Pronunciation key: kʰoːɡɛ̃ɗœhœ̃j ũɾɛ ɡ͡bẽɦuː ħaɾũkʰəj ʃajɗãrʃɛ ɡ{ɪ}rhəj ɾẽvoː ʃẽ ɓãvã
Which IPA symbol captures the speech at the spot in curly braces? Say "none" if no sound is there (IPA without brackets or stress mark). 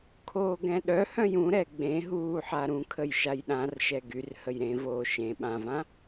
y